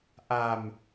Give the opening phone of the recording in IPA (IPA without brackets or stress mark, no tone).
ʔ